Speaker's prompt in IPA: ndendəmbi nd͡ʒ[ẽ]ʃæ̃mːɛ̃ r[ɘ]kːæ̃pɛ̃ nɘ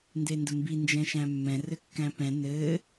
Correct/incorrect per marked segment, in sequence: incorrect: ɛ̃, correct

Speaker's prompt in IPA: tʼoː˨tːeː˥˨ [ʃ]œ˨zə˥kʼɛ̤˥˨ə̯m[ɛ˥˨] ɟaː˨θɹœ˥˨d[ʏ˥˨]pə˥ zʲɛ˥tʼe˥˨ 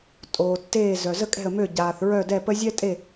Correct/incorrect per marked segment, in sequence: incorrect: z, incorrect: ø˥˨, incorrect: ɛ˥˨

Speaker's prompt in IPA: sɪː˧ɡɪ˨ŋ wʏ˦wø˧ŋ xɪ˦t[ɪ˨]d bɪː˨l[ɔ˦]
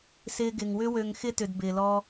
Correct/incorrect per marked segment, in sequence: incorrect: ʏ˨, incorrect: ɔ˧

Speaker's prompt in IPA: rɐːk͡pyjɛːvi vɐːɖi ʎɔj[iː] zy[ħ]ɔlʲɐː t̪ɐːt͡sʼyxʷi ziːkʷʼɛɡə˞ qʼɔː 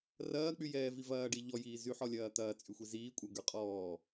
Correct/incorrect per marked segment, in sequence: correct, correct

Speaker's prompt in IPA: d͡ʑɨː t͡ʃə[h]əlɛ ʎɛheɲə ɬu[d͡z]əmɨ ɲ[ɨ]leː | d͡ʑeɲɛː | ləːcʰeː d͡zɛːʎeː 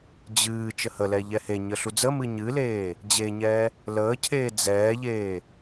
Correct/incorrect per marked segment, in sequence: correct, correct, correct

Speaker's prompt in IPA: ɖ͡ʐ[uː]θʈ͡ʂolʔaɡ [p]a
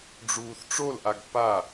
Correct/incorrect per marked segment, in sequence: correct, correct

